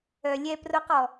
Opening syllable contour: low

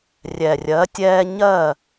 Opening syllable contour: low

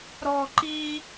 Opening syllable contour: high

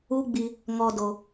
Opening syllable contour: high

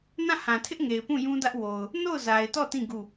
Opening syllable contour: falling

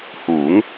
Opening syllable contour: rising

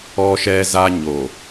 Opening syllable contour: high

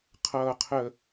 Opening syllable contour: low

